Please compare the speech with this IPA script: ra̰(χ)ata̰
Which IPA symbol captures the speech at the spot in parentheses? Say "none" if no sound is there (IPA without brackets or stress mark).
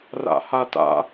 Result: h